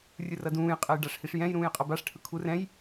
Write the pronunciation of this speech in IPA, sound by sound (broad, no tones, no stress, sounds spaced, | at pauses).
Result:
rʲ ɯ r ʌ d ũː j qʼ ɛ j ɖ a ʂ h i ʂ j ɛ̃ j ɾ ũː j qʼ ʌ b a ʂ ʈʰ ɯ kʰ u r ɛ̃ j